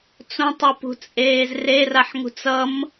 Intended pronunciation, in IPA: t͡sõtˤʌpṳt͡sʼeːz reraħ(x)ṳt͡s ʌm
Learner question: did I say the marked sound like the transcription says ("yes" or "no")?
no